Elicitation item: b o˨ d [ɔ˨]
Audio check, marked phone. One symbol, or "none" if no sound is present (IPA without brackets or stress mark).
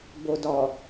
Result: ɔ˨